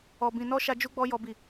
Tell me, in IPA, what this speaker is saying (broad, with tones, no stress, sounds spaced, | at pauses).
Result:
ɔ˧ b ĩ˧ n ɔ˦ ʃ a˦ d͡ʒ u˦ ɡ͡b ɔ˦ j ɔ˦ b i˦˨